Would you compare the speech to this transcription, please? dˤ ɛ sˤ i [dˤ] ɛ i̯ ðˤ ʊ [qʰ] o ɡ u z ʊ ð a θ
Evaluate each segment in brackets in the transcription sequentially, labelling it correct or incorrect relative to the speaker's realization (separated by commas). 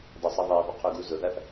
incorrect, correct